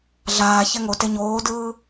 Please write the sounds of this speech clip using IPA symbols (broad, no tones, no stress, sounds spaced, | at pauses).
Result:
ɮ aː ç ɛ ŋ o t e ɲ oː d ɯː